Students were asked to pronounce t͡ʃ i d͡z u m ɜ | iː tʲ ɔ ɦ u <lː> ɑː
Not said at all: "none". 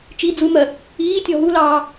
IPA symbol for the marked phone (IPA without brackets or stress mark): l